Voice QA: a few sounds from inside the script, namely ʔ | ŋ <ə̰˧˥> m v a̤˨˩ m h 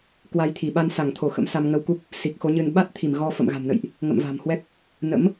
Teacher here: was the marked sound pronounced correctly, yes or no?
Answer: no